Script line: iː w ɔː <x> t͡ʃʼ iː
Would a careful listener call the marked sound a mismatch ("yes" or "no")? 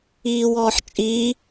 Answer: yes